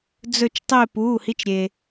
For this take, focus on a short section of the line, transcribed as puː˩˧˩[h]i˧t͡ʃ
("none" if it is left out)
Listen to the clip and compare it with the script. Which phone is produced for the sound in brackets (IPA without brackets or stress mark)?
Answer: h